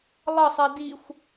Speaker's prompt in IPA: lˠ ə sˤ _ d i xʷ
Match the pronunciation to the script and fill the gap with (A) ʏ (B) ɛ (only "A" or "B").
B